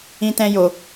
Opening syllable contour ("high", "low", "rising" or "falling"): high